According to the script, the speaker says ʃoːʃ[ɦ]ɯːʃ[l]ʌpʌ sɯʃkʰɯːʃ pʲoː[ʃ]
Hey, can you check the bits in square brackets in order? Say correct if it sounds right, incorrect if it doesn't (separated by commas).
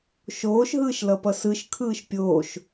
correct, correct, correct